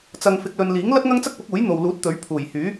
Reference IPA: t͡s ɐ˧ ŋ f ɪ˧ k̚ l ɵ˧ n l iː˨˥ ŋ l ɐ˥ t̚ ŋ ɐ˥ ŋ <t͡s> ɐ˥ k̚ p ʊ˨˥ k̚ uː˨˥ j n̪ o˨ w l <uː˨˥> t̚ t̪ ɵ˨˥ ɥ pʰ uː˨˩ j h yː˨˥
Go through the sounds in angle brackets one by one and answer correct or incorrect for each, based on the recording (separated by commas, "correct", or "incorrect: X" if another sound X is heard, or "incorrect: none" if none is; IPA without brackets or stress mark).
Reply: correct, correct